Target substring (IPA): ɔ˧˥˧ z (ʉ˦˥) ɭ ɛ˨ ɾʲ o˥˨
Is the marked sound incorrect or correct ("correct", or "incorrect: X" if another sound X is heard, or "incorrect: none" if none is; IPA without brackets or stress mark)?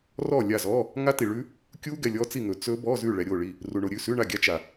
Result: incorrect: ʉ˥˨